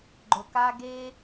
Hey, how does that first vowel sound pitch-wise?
low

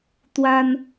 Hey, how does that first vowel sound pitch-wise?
high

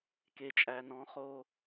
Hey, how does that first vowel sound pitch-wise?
low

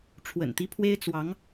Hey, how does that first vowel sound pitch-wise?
low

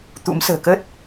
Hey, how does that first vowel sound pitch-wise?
rising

